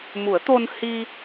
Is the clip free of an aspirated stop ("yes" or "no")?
yes